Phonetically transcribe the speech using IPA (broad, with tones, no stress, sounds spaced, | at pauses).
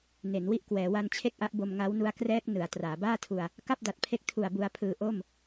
n e˩˦ n w i˥˩ ʔ k w ɛː˩˦ w a˧ n t͡ɕʰ e˥˩ k̚ ʔ a˦˥ ʔ b o˧ m ŋ a˦˥ w n u˦˥ a̯ k r ɛː˦˥ k̚ n ɯ˩˦ a̯ t r aː˩˦ b aː˥˩ tʰ u˧ a̯ | k a˥˩ p̚ d a˨˩ t̚ pʰ e˦˥ k̚ tʰ u˨˩ a̯ b u˧ a̯ pʰ ɯː˧ ʔ o˥˩ m